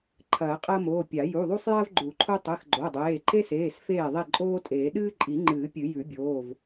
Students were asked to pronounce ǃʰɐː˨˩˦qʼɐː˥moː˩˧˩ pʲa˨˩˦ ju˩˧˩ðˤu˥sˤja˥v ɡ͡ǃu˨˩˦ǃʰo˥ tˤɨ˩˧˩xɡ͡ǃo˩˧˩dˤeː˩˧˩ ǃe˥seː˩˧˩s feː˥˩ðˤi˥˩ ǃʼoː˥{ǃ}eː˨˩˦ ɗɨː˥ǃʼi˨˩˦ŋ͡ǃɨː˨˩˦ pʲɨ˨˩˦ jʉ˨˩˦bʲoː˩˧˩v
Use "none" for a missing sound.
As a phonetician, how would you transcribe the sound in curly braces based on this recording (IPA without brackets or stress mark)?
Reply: tʼ